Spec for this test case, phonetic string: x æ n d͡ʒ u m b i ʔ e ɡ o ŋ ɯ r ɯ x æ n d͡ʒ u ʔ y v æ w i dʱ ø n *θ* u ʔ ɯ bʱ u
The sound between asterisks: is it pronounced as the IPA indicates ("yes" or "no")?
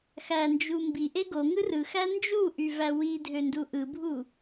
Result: no